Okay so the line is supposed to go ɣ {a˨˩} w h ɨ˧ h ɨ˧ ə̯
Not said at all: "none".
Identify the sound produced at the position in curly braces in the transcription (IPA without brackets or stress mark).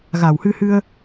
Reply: a˨˩